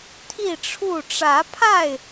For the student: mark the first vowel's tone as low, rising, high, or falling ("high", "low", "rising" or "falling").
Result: falling